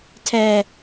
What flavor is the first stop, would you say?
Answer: aspirated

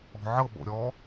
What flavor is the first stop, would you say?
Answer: implosive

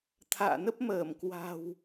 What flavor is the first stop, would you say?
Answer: aspirated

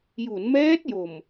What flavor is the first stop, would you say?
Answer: plain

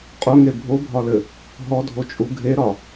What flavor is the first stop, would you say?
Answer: ejective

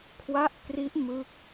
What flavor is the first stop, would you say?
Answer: aspirated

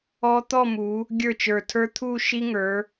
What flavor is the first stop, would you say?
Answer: plain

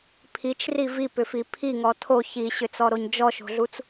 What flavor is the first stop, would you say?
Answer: aspirated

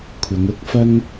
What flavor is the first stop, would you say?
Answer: aspirated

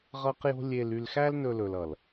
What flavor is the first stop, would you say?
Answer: plain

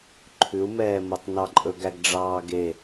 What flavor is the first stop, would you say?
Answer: click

